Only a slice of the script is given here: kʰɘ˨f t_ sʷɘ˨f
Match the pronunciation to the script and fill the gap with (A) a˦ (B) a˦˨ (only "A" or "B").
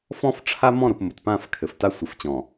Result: A